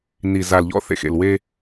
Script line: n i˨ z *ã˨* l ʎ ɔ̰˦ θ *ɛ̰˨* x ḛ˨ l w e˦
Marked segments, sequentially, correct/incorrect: incorrect, incorrect

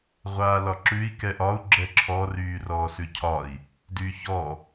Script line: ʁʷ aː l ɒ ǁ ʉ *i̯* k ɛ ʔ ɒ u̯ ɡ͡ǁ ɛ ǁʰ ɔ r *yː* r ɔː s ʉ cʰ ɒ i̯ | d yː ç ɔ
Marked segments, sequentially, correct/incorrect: correct, correct

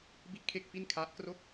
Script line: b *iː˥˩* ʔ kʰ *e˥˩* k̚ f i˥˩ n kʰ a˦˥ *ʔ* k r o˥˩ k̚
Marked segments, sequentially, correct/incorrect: incorrect, correct, correct

